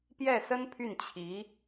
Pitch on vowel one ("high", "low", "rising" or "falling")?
falling